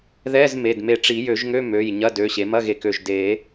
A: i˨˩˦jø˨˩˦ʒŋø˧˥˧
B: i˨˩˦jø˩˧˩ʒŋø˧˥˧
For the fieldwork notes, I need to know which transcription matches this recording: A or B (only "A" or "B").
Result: A